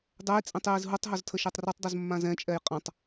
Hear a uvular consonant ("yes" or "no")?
yes